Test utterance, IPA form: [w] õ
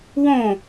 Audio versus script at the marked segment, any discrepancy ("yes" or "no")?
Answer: no